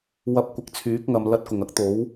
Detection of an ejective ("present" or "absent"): absent